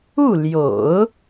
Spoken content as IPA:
u˥˩ l j o̰˨˩˦ ʊ̯

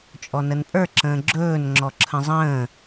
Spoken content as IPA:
t͡ʃʼ ɔ n ə n pʼ ə˞ ǁ ə̃ː ɡ͡ǁ ɵː n ŋ͡ǁ ɔ ǁʰ ə̃ zˤ ə̃ː

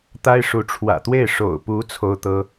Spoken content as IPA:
t̪ a˥ ɪ̯ ʂ u˧˥ ʈ͡ʂʰ w ä̰˨˩ t̪ w e˥˩ ɪ̯ ʂ o̰˨˩ ʊ̯ p u˧˥ t͡sʰ o˥ ʊ̯ t̪ ɤ˥

